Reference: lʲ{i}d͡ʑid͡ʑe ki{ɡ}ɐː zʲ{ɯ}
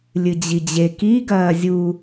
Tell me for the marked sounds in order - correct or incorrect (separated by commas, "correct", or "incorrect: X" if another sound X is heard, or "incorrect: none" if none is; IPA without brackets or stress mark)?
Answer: incorrect: ɨ, correct, incorrect: u